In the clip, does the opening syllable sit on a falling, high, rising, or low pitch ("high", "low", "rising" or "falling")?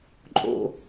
low